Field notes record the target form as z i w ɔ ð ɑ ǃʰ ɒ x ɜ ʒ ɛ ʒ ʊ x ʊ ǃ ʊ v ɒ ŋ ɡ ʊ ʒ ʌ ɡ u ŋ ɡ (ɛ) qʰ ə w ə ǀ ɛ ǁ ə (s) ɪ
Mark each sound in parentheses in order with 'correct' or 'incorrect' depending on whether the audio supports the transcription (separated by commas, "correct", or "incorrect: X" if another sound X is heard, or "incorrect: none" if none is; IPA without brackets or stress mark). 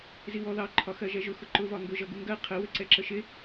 incorrect: ɜ, incorrect: ʃ